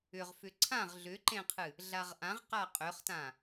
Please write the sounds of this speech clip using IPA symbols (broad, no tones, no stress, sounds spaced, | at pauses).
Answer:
ʏ ʁ f ʏ ǀʰ ã ʁ ɮ ʏ ǃ ẽ qʰ ɨ | ɮ a ʁ ʔ ã ʁ q a qʼ ʏ χ t ã